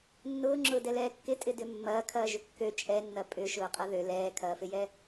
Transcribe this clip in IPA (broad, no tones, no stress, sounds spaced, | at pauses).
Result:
nː ʊː ŋ͡ǁ ʊː d ɛ l ɛː kː ɪ tʼ ɪ d ʏ mː ɐː kʰ ɐː ʒ ʏ kː ø t͡ʃʼ ɛ nː ɐ pʼ ʏ ʃ ʊː qʼ ɐ ð ø l ɛː kʰ ɐː f ɪ j ɛ